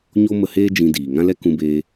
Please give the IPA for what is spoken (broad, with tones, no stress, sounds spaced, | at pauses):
ɲ o˦ m ə˧ h eː˦ d͡ʒ ĩ˧ d iː˨ ŋ ã˦ l ɛ˦ k ũ˧ b eː˧